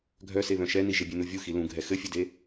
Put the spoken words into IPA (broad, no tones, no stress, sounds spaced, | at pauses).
ɡʱ œ s e β œ̃ ʃ ɛ n i ʒ ɪ bʲ e n u vʲ u x i l ũ ɡʱ ɛ x ɘ fʲ ɘ d e